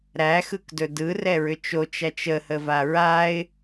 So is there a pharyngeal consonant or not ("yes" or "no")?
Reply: no